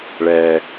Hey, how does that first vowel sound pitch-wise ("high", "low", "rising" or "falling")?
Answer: low